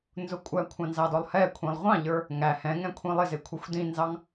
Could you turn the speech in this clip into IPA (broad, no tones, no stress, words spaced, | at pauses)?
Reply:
nzʊkʷʼækʷʰɑ̃ nzɑdɔlˠhɛkʷʰĩlˠ ʁʷɑ̃ʎə˞ | ŋæ hɛ̃ŋɛ̃ kʷʰĩlˠɪzɪ kʷʰɛxʷdĩnzɑŋ